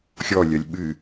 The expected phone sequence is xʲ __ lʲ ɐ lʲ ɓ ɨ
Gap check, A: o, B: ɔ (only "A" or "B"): B